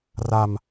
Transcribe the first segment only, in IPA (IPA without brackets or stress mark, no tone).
r